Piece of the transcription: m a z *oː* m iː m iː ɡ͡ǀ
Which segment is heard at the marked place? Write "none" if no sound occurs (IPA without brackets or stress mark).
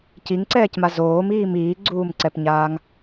oː